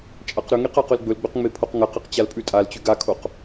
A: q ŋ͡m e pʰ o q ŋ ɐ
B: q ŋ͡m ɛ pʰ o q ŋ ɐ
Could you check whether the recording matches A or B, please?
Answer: A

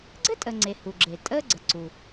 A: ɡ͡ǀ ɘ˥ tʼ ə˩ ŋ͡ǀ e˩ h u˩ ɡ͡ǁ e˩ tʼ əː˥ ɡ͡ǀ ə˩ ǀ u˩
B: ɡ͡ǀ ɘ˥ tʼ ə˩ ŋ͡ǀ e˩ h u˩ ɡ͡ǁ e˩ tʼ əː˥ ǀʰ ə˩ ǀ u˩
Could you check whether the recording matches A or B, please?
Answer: A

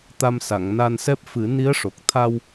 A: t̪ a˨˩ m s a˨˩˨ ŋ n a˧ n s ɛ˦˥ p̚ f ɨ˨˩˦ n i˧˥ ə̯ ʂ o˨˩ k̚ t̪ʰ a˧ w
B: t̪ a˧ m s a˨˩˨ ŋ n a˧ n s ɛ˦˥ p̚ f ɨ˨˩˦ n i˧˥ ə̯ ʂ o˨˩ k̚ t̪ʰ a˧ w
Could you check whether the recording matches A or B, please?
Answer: B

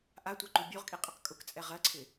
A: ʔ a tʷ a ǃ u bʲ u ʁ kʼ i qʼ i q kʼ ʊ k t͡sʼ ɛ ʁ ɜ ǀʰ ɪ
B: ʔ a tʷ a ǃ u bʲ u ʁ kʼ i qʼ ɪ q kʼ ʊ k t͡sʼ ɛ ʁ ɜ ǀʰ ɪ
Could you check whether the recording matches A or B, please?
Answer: B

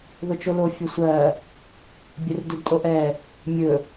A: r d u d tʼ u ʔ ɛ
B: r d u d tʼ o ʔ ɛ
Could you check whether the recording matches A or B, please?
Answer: B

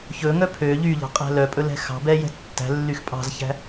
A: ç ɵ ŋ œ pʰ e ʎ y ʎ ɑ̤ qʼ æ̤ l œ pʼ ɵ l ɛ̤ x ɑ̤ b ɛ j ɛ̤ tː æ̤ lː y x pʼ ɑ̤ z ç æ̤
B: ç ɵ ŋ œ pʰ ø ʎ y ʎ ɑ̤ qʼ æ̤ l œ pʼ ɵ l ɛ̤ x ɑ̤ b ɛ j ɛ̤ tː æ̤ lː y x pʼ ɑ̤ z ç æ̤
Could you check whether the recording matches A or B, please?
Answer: B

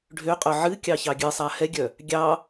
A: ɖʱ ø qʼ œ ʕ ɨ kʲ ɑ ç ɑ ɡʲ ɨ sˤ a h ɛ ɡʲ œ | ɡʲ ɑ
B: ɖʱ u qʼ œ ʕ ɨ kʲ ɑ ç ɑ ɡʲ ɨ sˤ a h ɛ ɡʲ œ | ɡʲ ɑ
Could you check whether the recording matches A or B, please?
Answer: A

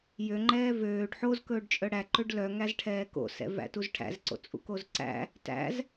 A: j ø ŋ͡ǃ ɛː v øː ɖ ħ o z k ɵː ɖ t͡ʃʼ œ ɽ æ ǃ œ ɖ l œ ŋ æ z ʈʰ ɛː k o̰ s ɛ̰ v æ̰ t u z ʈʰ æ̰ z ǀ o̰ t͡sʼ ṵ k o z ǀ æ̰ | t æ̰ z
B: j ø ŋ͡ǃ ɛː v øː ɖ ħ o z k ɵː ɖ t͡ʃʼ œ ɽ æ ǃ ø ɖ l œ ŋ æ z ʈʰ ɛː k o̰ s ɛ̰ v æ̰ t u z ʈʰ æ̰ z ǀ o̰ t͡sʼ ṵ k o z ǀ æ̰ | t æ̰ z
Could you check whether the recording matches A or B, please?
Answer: B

